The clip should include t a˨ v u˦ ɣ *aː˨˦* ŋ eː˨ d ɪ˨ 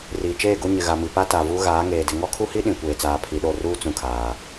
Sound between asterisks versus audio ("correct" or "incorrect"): correct